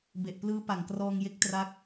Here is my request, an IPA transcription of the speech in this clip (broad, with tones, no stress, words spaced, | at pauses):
be˨˩ʔplɯː˦˥ pa˨˩ŋkrɔː˧ŋje˦˥k̚ tra˦˥k̚